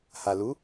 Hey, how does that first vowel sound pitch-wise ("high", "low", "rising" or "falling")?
low